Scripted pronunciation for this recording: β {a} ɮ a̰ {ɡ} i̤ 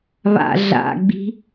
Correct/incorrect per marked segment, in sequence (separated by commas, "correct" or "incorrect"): incorrect, incorrect